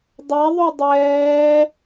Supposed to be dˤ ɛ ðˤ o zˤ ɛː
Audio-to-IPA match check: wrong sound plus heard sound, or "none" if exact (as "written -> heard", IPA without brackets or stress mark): zˤ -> dˤ